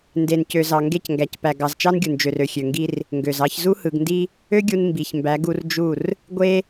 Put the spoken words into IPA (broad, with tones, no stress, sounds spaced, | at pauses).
n d e˨ n c ø˨ z ɑ˨ ŋ ɡ e˦˨ c ŋ ɡ æ˨ c p æ˨ ɡ ɑ˨ z t͡ʃ ɑ˦ n ɡʲ u˨ n d͡ʒ ø˨ r ø˨ xʲ ø˨ ŋ ɡ i˦ r | ŋ ɡ ø˨ z ɑ˦ ç z u˦ h ɯ˨ ɡ n d i˦ | ø˦ ɡʲ u˦ n m b i˨ ç m b æ˨˦ ɡ u˦ r d͡ʒ u˦˨ r | ɡʷ e˦